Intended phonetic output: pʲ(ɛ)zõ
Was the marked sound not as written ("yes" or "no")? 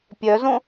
yes